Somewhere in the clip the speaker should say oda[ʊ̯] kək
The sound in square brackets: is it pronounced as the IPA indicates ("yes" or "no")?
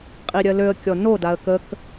no